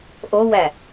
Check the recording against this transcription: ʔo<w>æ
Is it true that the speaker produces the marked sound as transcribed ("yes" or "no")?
yes